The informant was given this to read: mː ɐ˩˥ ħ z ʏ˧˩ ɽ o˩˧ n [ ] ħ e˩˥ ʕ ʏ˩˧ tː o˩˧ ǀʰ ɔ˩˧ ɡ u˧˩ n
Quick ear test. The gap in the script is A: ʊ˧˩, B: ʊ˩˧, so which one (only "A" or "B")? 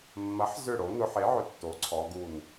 B